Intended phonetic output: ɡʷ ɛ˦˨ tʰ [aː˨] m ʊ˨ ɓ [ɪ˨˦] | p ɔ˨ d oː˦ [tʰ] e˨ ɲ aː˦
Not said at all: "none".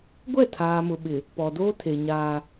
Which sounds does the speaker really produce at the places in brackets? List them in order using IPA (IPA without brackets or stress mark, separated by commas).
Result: aː˨, ɪ˨, tʰ